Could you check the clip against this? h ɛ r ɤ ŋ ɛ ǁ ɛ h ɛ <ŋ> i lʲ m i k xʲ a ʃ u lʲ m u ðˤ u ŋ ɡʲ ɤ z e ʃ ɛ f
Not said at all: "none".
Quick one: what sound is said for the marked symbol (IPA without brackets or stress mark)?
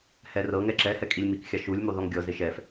kʼ